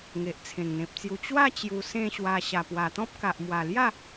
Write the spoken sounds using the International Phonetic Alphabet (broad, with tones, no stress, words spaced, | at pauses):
ŋe˨ʔt͡sʰẽ˨˩ŋn̪ẽ˨p̚t͡sju˧ t͡ɕwa˥˧ t͡ɕju˧sẽ˥˧ɕwa˧ ɕa˨˩pwa˨˩t̪ɔ̃˦p̚ka˨ʔ mwa˨˩lja˥˧